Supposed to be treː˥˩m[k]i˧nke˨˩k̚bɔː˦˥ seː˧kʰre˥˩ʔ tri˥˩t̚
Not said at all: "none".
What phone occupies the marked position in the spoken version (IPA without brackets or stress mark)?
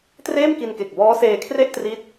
k